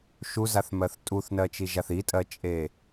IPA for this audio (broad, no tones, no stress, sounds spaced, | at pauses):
ʃ u z a θ m ɜ θ tʼ u θ n ɜ t͡ʃ i ʒ a θ i tʼ ɜ t͡ʃʼ e